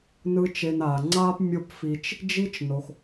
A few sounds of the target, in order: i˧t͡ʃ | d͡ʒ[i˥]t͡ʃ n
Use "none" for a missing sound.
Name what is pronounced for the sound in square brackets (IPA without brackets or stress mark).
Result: i˥